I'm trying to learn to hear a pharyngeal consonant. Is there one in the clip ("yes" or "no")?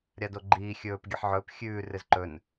yes